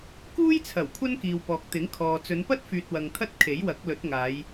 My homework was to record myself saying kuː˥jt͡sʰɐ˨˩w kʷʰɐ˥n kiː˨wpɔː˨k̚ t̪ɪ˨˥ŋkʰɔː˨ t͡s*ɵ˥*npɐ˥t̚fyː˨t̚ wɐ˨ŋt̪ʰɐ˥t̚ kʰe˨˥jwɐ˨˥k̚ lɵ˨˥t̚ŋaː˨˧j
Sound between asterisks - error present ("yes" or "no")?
yes